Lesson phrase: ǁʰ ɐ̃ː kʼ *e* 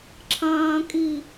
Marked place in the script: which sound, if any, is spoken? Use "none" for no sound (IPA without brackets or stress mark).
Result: i